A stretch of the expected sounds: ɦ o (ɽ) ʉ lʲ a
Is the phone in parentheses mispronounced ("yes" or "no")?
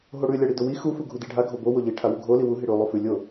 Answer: no